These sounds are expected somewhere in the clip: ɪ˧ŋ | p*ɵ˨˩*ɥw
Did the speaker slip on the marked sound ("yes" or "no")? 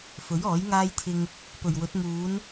no